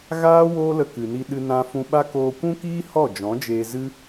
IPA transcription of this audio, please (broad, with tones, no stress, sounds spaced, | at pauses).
ɣ aː˦ w oː˦ l ə˧ k ɨ˨ n i˧ ɗ ɨ˧ n ã˧ f ũ˧ ɓ a˦ k oː˧ kʷ ũ˦ k iː˦ h ɔ˦˨ d͡ʒ ɔ̃˨˦ d͡ʒ eː˧ z ɨ˦